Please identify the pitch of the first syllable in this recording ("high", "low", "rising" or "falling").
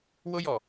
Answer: high